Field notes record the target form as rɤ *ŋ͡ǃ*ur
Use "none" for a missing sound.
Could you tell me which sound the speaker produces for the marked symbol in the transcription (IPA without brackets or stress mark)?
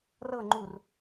ŋ͡ǃ